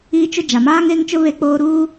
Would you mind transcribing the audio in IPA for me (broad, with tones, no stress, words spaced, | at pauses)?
iː˦t͡ʃʊ˦ d͡ʒa˨maː˦ŋe˦ŋt͡ʃʊ˦ βe˦k͡poː˦ɾuː˦